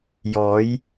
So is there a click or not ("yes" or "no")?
no